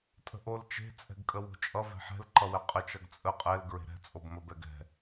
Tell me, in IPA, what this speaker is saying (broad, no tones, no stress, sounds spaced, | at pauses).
tʼ ə̤ ʔ o l t͡ʃ e̤ t͡sʼ ɛ̤ ɡ kʼ ə w o̤ t͡ʃʼ ʌ v ɛ̤ ħ ɛ̤ l ǃ ʌ w ɛ qʼ ə t͡ʃ ʌ ɡ t͡sʼ ə qʼ ɛ l ɡ ɹ e̤ ɾ ɛ̤ t͡sʼ o b m ə b ɛ ɡ ɛ̤